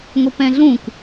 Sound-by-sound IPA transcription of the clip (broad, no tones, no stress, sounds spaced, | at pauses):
ŋ o p ɛ̃ ɮ ũ k